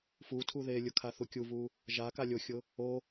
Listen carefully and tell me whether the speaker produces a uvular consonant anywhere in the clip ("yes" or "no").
no